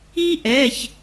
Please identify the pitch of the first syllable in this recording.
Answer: high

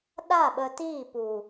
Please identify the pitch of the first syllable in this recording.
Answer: falling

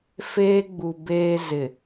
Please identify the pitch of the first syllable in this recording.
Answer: high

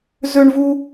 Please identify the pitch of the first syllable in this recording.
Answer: high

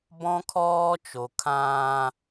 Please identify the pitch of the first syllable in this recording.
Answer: high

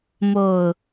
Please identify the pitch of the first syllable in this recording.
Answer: low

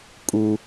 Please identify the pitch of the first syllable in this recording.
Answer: high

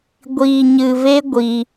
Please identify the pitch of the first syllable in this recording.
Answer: low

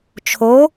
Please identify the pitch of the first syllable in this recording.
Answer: rising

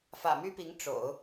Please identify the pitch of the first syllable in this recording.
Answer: low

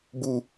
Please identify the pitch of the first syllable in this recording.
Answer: falling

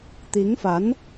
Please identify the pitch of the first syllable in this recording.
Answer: rising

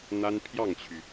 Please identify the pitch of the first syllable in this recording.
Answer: high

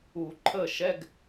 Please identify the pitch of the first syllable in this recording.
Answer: low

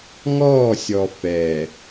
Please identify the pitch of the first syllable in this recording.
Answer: falling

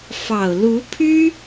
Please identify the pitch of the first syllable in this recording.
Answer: low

